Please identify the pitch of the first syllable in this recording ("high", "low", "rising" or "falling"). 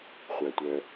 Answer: low